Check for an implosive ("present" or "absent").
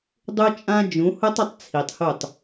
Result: absent